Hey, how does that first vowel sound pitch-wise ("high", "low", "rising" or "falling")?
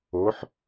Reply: rising